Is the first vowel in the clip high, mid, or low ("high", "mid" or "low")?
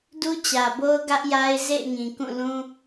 high